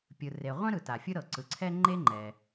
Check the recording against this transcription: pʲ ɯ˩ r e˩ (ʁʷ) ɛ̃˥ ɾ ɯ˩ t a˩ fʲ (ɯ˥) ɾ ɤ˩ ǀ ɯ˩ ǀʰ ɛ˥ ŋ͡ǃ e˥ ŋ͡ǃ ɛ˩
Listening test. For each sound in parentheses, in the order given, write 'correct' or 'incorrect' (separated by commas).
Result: correct, correct